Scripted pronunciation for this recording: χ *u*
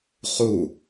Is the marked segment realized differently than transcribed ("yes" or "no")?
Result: no